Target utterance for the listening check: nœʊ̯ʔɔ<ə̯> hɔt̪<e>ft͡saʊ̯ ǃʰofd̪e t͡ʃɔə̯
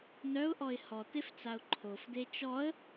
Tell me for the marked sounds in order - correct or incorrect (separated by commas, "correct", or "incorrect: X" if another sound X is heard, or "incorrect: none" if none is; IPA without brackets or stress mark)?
incorrect: ɪ̯, correct